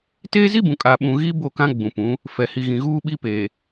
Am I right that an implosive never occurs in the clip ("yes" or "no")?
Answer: no